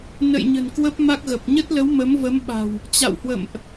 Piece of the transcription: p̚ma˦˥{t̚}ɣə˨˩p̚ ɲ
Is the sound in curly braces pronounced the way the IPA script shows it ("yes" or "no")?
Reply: no